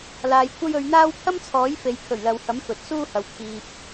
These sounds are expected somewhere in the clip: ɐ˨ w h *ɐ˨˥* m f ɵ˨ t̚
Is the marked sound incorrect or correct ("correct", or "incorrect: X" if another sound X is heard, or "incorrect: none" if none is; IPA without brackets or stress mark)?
correct